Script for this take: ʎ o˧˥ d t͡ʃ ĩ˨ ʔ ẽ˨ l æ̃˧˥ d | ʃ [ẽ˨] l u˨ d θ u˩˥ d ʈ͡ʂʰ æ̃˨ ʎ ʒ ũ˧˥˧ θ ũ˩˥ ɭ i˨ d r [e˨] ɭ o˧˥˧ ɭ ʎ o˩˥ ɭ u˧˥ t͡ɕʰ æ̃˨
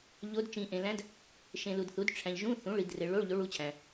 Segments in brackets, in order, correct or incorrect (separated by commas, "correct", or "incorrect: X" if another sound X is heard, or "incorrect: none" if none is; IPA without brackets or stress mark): correct, correct